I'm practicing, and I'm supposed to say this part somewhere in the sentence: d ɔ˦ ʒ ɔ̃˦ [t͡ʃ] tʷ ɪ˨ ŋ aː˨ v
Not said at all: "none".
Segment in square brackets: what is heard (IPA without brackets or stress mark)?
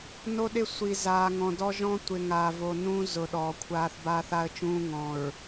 none